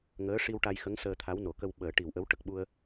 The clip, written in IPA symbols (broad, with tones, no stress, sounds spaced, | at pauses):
ŋ əː˧˥ ʂ i˧ w ʈ a˧ j x ə˧˥ ŋ s əː˧ t̪ʰ a˧˥ w n o˨˩˨ k ə˧ w ɓ əː˨˩˦ ʈ i˨˩ w ʔ ə˧˥ w ʈ ə˨˩ k̚ ɓ u˧ ə̯